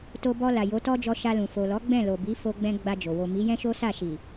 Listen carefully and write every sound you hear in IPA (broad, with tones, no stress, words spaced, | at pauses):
to˧bɔ˧ la˨jo˨˦tɔ˦d͡ʒɔ˧ ʃa˧lũ˨ fo˨lɔ˨˦ ɡ͡bɛ̃˦˨ lo˨bi˨˦fo˧ɡ͡bɛ̃˧ ɡ͡ba˧d͡ʒo˨ wo˨ mi˨˦jɛ̃˦ʃo˦sa˦˨ ʃi˨